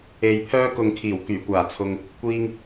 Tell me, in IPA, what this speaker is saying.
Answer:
e˨ j pʰ œː˧ k ʊ˨ ŋ kʰ iː˨˩ w k yː˨˩ kʷ aː˨˩ t͡sʰ ʊ˨ ŋ | kʷ iː˧ ŋ

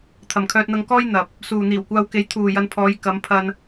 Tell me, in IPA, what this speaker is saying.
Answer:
t̪ʰ ɐ˨ m kʰ œː˧ t̚ n̪ ɐ˧ ŋ k ɔː˥ j n̪ ɐ˨ p̚ | s uː˨ n̪ iː˨˩ w kʷ aː˧ w k e˨˥ j t̪ʰ uː˨ j ɐ˧ n pʰ ɔː˨˧ j k ɐ˨˧ m pʰ ɐ˧ n

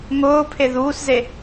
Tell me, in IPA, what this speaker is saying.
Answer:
ŋ ʊː pʰ e ð uː s z e

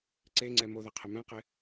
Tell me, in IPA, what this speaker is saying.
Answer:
ǀ e ŋ͡ǀ ɛ m o ð ɛ qʰ ɪ m ɛ̃ q ɪ

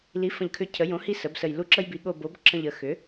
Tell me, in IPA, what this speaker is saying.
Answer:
l i˩˥ f ə̃˧˩ ʎ kʰ ʏ˧ cʰ ə˩˧ j õ˩˥ h i˧ s ə˩˥ b s ə˧˩ j l u˧˩ ǁ ə˧ j b i˩˧ ɠ o˧˩ b o˩˥ b ǁ ə̃˧˩ ʎ ə˩˧ x ʏ˩˥

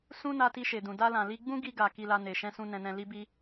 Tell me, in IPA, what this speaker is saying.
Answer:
s ũ˦ n a˧ t i˧ ʃ e˨ d ũ˨ d a˧ l ã˨ l i˧ ɡ͡b ũ˦ ɡ i˧ ɡ a˨ k i˧ l a˧ n e˨ ʃ ɛ̃˧ s ũ˧ n ɛ̃˧ n ɛ̃˧ l i˦ b i˦

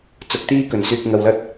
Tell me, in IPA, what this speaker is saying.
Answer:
t͡s ʊ˨˥ k̚ t̪ iː˧ k ɵ˨˩ n s yː˨ k̚ ŋ ɐ˨ w l ɐ˧ t̚

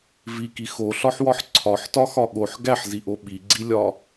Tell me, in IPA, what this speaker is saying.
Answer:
v i k i x o ɬ ɒ ħ w ɒ ħ ǀʰ ɒ ħ t ɒ x ɒ ɠ o ħ ɡ æ ħ z i ʔ o ɓ i ɡ͡ǀ i lʲ ɒ

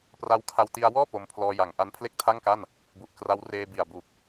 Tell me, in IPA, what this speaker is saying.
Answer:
p r a˧ w kʰ a˧ w t i˧ a̯ w ɔː˥˩ p o˧ m pʰ l ɔː˧ j a˨˩ ŋ ʔ a˦˥ n pʰ l e˥˩ k̚ tʰ a˥˩ ŋ k a˥˩ n | b u˨˩ ʔ k r a˦˥ w r eː˧ b i˨˩ a̯ b u˨˩ k̚

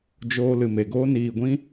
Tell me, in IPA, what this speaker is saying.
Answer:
d͡ʒ oː˧ l ɨ˨ m e˨ ɡ oː˦ n iː˨ ɡʷ ĩ˦

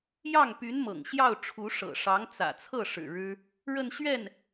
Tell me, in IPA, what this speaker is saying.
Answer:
j ɑ˥˩ ŋ p y˧˥ n m ɤ̰˨˩ ŋ ɕ j ɑ˥˩ ʊ̯ ʈ͡ʂʰ u˧˥ ʂ ɤ̰˨˩ ʂ ɑ˧˥ ŋ t͡s ä̰˨˩ t͡sʰ ɤ˥˩ ʂ ɻ̩˨˩ ɻ ɻ̩˥ | ɻ ə˥˧ n ɕ ɥ ɛ˥˩ n

